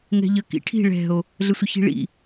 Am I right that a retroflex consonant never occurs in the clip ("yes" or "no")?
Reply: no